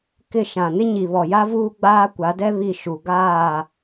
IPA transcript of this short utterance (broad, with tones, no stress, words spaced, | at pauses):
kɪ˦˨ ʃã˨nɪ˦ɲi˨ βɔ˨ja˦vuː˦ ɡ͡baː˦kʷa˨˦dɛ˦ βi˦˨ ʃu˨ ɡaː˦˨